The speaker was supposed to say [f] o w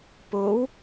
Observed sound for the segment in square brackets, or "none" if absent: p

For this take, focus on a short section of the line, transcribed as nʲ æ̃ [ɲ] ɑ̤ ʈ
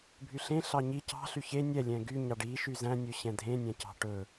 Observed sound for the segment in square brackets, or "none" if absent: c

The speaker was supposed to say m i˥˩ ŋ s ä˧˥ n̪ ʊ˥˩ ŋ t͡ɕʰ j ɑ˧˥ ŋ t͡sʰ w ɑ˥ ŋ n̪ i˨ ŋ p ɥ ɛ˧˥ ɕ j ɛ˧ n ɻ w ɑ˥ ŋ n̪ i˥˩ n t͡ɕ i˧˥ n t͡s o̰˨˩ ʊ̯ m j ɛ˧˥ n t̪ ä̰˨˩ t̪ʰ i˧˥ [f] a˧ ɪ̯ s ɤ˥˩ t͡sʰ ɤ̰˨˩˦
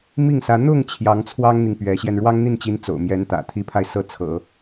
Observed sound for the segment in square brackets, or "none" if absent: pʰ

